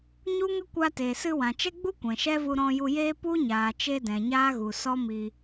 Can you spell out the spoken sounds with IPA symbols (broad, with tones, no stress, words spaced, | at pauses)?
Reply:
ɲu˦ŋə˦kʷa˧te˨ sɨ˧wã˨t͡ʃɛ˦ɡ͡bu˦ kʷɛ̃˨ʃɛ˦vu˧ ɾɔ̃˧ju˧jeː˦ pu˦ɲaː˨t͡ʃe˧ dɛ̃˨ɲaː˦ɣu˨ sɔ˦miː˧